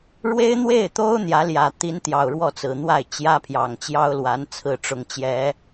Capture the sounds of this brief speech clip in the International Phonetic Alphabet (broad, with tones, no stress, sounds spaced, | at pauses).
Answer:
ɻ w e˥ ɪ̯ n̪ w e˥˩ ɪ̯ t̪ o˥ ʊ̯ n̪ j ä˧˥ l j ä˨˩ t̪ i˧˥ n t̪ j ɑ˨˩ ʊ̯ ɻ w ɔ˥˩ t͡s ɹ̩˨˩ n̪ w a˥˩ ɪ̯ t͡ɕ j ä˥ pʰ j ɑ˨˩ ŋ t͡ɕ j ɑ˥ ʊ̯ l w a˧˥ n t͡sʰ ɹ̩˥˩ ʈ͡ʂ ʊ˧˥ ŋ t͡ɕ j ɛ˧˥